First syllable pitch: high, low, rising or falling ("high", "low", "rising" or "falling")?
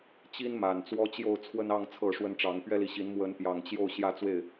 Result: high